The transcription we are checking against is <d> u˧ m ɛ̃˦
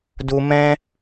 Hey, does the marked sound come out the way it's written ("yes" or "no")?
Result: yes